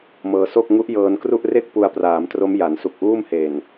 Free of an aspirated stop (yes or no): yes